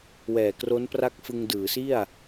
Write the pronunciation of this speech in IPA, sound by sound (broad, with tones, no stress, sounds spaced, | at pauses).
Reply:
w ɛː˨˩ k r o˦˥ n p r a˦˥ k̚ f ɯ˧ ŋ d ɯː˩˦ s i˥˩ a̯